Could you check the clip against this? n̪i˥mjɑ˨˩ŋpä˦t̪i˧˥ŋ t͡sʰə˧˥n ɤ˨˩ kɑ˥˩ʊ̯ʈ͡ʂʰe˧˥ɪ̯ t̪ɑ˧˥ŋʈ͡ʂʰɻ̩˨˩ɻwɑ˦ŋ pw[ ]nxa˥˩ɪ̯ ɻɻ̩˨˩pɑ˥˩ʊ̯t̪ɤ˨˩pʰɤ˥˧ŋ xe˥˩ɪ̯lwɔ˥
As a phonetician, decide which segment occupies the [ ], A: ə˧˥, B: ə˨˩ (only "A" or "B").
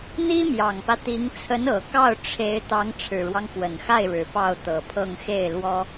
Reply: B